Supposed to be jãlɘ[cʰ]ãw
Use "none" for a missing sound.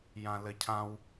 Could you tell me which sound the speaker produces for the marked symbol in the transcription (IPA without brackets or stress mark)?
cʰ